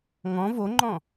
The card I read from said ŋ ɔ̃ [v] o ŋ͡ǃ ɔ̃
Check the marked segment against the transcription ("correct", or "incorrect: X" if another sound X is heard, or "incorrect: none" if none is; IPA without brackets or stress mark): correct